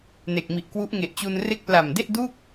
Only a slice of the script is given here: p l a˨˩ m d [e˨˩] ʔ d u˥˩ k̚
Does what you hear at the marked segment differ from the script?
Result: yes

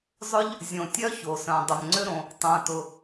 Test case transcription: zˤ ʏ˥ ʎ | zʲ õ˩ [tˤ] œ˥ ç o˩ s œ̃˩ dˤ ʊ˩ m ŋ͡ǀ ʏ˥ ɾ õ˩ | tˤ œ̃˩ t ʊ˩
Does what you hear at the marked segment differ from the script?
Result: yes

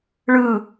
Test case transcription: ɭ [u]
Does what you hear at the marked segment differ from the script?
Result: yes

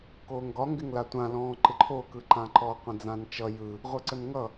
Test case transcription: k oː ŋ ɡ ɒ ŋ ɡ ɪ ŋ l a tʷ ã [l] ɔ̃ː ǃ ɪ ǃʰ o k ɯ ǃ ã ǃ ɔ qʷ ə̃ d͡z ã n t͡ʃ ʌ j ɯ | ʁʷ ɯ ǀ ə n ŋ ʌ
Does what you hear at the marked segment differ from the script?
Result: no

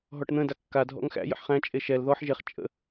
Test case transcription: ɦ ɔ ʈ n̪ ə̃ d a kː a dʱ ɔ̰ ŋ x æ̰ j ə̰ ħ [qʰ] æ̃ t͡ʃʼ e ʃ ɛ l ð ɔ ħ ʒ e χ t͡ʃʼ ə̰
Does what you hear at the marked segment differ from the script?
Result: yes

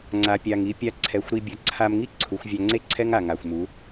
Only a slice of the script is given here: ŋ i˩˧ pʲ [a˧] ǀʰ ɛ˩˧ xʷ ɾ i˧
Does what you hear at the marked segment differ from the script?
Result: no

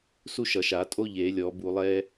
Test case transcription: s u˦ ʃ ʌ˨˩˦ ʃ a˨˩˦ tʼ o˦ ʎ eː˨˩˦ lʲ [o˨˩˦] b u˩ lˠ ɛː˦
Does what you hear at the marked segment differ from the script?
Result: yes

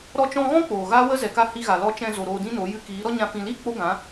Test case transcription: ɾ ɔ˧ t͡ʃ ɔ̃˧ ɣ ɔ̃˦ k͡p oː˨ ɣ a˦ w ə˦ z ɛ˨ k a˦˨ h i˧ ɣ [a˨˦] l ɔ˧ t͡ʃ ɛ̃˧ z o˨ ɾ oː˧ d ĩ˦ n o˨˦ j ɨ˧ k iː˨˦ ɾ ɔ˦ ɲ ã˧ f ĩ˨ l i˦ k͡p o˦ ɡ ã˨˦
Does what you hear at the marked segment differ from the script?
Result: yes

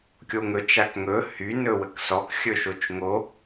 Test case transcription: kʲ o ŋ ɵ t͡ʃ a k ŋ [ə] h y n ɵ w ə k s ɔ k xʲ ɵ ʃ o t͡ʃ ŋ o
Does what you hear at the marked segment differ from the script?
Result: yes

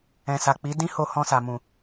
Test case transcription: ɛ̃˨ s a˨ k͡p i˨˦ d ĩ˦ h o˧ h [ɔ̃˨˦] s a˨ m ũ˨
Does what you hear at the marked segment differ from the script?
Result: yes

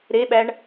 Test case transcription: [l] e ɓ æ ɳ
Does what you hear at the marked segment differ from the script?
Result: yes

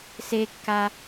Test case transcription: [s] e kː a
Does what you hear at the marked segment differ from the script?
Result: no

